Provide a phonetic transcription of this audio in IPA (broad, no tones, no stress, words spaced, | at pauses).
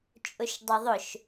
t͡ʃʼʊʃdˤoðˤʊʃ